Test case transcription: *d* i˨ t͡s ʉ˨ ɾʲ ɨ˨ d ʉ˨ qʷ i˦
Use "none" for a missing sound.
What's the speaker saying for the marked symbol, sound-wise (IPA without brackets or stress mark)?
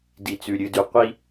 d